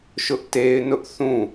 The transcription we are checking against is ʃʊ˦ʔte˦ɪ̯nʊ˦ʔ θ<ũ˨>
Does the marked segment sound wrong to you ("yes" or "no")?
yes